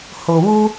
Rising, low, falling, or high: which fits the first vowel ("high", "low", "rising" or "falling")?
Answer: low